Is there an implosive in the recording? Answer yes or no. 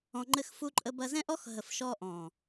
no